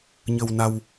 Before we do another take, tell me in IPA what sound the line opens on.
ɲ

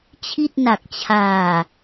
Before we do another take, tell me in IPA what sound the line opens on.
t͡ɕʰ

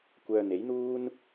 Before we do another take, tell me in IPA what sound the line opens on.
kʷ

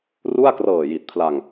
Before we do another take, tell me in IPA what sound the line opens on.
r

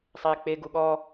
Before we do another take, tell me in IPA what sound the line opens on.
sˤ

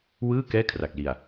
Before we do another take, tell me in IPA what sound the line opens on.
w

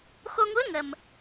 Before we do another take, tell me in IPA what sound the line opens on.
x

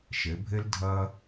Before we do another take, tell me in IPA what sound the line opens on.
ʃ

